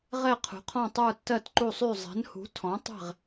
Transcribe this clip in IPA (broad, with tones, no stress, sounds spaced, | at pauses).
ʁ ɛ˥˧ qʰ ṳ˨˥ qʰ ɔ̃˥˧ tˤ ə˞˥˧ tː ɜ˥˧ t ǃ u˥˧ sˤ y˥˧ zˤ ɛ̤˨˥ n h ṳ˨˥ tʰ ɔ̃˨˥ tˤ ɛ̤˥˧ ʁ